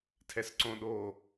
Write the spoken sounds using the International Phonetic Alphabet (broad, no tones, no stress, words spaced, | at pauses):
tʰɛsǀõɗo